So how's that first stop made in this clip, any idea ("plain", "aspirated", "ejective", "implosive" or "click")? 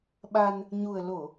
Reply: implosive